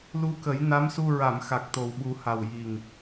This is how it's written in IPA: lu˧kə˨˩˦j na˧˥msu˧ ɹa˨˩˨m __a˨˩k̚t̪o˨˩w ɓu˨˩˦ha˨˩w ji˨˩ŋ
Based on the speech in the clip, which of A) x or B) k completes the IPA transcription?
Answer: A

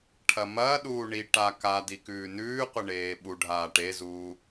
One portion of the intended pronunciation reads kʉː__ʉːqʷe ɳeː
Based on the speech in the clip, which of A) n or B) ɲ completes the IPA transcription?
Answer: A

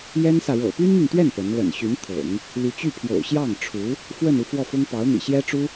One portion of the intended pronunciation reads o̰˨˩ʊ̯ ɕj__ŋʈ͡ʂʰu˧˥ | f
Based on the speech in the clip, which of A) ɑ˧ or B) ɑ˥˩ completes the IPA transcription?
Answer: B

